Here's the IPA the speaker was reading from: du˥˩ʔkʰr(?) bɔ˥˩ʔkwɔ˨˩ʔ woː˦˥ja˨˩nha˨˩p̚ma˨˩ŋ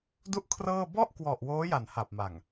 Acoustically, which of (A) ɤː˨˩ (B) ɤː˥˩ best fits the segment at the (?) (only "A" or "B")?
B